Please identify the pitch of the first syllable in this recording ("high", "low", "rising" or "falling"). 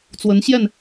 rising